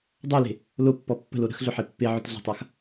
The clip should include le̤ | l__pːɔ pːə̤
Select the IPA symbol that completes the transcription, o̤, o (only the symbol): o